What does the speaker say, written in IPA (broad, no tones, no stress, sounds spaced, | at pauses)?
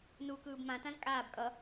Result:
n uː k ɯː b m ã t ã z kʼ aː b kʼ ʌ